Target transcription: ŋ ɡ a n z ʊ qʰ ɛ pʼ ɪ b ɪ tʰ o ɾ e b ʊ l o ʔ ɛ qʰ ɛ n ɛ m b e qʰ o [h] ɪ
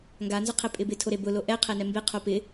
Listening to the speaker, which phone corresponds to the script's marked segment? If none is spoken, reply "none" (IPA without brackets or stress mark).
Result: p